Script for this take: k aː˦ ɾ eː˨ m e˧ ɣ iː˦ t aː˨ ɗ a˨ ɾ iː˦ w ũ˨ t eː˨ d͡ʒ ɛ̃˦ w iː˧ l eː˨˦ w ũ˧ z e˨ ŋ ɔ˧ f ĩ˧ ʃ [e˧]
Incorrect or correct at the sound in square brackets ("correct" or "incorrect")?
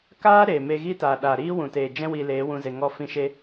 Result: correct